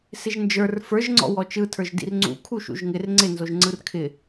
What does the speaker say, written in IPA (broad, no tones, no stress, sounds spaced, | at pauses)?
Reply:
s ɪ ʒ n d͡ʒ ə˞ r f ə˞ ʒ ŋ͡ǀ ɔ̰ w ɔ t͡ʃ ɯ tʰ ə˞ ʒ d ḭ r ŋ͡ǀ ṵ kʰ u ʃ ṵ ʒ ŋ ɪ r ŋ͡ǀ ɪ n z o ʒ ŋ͡ǀ ɯ r kʰ ɪ